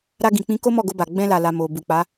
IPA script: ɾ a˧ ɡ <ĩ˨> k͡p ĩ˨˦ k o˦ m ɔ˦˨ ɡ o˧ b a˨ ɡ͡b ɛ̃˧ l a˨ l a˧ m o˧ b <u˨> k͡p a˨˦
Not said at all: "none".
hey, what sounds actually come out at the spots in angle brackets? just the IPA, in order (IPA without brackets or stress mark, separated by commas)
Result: ĩ˨, u˨